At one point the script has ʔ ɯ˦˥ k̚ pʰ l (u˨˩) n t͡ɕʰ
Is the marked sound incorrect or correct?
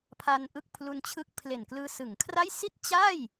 incorrect: u˧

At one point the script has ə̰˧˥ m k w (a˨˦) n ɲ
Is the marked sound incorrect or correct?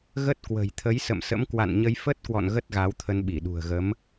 incorrect: a̰˧˨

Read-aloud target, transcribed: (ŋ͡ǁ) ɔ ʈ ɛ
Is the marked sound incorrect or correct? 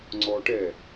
incorrect: ŋ͡ǀ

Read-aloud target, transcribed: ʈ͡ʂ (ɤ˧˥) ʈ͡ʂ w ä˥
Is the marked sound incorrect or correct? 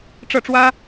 incorrect: ɤ˥˩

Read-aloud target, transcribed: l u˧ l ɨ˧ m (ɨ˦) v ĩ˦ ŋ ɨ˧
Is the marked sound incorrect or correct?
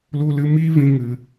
incorrect: i˦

